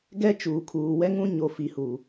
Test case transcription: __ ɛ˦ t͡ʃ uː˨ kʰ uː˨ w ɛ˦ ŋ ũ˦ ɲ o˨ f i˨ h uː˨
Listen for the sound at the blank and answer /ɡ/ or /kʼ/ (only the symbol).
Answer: ɡ